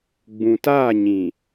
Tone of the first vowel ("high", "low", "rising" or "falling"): low